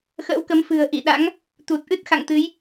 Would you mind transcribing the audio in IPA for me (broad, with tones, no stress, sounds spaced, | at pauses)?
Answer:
x ə̰ː˧˥ w k ə˨˦ m f ɨ̤˨˩ ə̯ ʔ ḭ˧˨ ɗ a̰˧˥ ŋ | t̪ u˨˩ t̚ ʔ ɨ˦˥ t̚ x a̰˧˨ ŋ t̪ ɨ˨˦ j